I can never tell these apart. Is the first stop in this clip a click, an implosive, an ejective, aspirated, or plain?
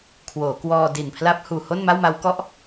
aspirated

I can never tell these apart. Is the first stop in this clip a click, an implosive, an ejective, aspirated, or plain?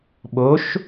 implosive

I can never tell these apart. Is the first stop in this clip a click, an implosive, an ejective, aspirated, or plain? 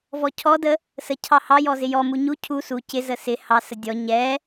aspirated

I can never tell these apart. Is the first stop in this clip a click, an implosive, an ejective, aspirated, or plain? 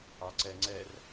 click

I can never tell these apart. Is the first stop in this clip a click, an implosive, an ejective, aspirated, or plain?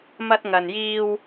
plain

